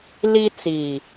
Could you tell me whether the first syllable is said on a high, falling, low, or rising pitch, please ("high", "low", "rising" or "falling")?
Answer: high